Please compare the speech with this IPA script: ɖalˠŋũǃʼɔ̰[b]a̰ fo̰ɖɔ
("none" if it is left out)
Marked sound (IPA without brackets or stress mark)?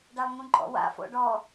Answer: w